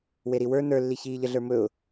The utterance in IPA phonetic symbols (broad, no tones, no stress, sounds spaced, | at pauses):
w e ɾ i w ə˞ n ə˞ lː i ç iː ʎ ə ɮ ə˞ m ɵ ʊ̯